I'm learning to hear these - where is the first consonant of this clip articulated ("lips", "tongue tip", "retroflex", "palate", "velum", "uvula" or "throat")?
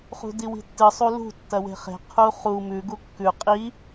uvula